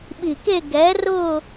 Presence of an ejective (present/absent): absent